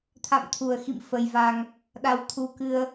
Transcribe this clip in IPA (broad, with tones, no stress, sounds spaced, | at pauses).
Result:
t̪ʰ a̰˧˨ m t̪ʰ u˨˩ ə̯ x ḭ˧˨ m f ə˧ j v a˧ ŋ | ɗ a˧ w t̪ʰ u˧ k ɨ˧ ə̯